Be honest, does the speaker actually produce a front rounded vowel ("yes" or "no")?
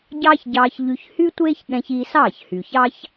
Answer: yes